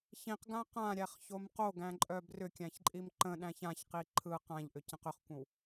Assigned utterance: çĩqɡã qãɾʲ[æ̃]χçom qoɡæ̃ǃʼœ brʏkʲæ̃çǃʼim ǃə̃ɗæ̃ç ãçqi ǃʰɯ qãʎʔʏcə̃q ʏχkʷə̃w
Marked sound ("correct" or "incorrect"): incorrect